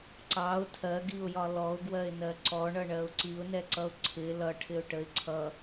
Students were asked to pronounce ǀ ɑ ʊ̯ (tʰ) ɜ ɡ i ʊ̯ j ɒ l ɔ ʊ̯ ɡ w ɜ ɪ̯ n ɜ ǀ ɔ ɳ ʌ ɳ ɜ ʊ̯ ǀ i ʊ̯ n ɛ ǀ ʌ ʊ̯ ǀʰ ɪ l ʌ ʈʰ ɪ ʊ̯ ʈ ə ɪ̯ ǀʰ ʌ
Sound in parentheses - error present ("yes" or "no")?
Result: no